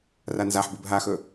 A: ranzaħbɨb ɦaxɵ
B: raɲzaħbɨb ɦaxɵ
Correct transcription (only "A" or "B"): A